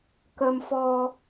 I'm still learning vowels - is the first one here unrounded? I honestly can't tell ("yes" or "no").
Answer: yes